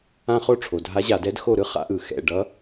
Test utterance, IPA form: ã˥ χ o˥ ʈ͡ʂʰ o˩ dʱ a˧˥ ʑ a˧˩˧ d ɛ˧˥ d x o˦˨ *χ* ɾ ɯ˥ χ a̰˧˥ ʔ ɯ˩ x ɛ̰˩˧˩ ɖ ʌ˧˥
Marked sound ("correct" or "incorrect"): incorrect